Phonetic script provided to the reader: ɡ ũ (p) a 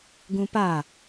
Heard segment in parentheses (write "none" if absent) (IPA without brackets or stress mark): p